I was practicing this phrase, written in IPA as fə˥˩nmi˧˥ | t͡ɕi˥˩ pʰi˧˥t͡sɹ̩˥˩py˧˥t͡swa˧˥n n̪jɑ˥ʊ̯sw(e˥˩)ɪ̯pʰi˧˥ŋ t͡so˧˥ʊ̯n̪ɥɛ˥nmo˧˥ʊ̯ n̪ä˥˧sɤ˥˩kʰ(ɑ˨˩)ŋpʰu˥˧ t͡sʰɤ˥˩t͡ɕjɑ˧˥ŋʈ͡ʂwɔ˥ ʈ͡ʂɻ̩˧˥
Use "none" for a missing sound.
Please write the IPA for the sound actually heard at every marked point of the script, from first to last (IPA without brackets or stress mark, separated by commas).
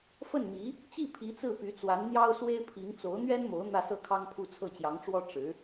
e˥, ɑ˥